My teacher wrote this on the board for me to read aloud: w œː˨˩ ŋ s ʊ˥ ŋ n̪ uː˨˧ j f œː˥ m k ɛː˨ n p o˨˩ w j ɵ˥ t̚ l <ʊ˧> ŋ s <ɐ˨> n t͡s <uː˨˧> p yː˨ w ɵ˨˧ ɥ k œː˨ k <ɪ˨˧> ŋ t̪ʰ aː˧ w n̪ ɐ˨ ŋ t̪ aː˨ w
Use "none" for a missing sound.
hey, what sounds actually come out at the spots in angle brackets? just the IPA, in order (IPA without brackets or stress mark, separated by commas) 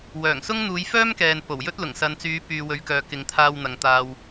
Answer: ʊ˨˩, ɐ˨, yː˨˧, ɪ˨˧